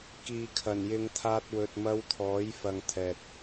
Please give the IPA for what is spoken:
k iː˨ kʰ ɐ˨˩ n j ɪ˨˧ ŋ t̪ʰ aː˧ t̚ w ɵ˨ t̚ m ɐ˧ w t̪ʰ ɔː˨˥ j f ɐ˨ ŋ t̪ʰ ɛː˨ t̚

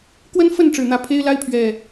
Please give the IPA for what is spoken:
k w ə˦ n f ə˥˨ n ʈ͡ʂ ɻ̩˨˩ n̪ ä˨˦ pʰ e˦ ɪ̯ l a˦ ɪ̯ pʰ ɥ ɛ˨˩

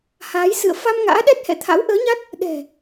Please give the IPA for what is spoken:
h aː˨˦ j s ɨ̰˧˨ ə̯ f a˧ m ŋ a̰ː˧˥ ɗ ɛ˦˥ t̚ h ɛ̰˧˨ t̪ʰ a̰˧˥ w ʔ əː˨˦ ɲ a˦˥ t̚ | ɗ ɛ̤˨˩

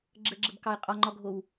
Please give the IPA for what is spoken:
ɡ͡ǁ ə ɡ͡ǁ ə b k ɑ e̯ qʼ ɒ ŋ͡ǃ ɒ ɡʱ o w

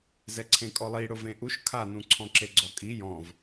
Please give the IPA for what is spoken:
z ɛ ǀʰ ẽ kʼ ɔ lˠ i ɽ ʊ v ẽ ʔ u ʃ kʰ a n ũ ǀʰ ɔ̃ ǁ e ɡ͡ǀ ɔ kʼ i j ɔ̃ v

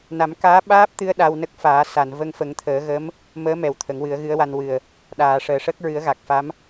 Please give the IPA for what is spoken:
n a˨˩˦ m k aː˧˥ ɓ aː˦˥ p̚ t̪ ɨ˧ ə̯ ɗ a˧ w n ə˦˥ k̚ f aː˨˩˦ s a˨˩˨ n v ə˧ ŋ f ə˨˩˦ ŋ t̪ʰ əː˨˩˦ ɣ ə˧˥ m | m əː˧˥ m ɛ˨˩ w t̪ʰ ə˨˩˦ ŋ w ɨ˨˩˦ ə̯ ɣ ɨ˧˥ ə̯ w a˧ n w ɨ˨˩ ə̯ | ɗ aː˨˩˨ ʂ əː˨˩ ʂ əː˦˥ k̚ ɹ ɨ˨˩˦ ə̯ ɣ a˨˩ k̚ f a˧˥ m

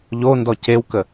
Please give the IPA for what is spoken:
ʎ o n d ɔ c e w k ə

